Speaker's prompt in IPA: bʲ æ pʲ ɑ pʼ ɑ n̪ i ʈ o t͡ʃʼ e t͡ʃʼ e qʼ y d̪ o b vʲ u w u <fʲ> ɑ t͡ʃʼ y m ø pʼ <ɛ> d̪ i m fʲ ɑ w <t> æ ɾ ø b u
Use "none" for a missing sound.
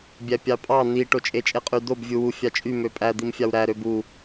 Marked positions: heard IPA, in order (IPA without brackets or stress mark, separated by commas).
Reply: fʲ, æ, ɾ